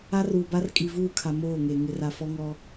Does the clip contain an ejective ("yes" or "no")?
yes